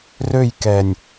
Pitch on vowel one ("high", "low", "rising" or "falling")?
falling